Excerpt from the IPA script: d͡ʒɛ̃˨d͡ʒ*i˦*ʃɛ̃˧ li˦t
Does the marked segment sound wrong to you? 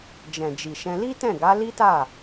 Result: yes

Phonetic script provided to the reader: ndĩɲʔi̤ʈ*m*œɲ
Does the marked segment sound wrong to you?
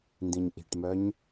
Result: no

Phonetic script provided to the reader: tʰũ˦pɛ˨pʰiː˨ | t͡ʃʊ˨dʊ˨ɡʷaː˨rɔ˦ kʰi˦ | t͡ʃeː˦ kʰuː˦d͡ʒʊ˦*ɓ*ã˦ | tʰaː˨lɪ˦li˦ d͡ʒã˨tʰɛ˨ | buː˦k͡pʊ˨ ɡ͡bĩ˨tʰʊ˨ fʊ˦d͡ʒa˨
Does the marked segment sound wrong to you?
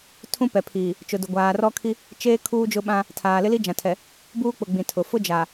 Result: no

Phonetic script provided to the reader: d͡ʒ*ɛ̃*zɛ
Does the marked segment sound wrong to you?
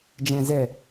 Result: no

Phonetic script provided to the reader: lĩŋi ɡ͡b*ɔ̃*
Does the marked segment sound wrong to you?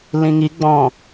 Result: no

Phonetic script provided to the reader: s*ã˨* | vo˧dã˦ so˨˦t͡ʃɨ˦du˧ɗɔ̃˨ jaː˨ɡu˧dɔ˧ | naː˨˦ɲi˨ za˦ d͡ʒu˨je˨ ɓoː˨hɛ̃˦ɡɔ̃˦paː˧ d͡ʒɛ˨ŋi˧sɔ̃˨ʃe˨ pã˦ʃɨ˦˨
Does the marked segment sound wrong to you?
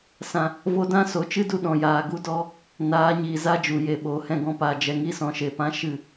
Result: no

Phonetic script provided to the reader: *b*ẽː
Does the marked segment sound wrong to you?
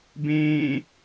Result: no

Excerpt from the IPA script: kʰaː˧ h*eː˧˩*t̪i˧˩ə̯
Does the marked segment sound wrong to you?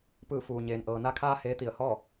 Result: yes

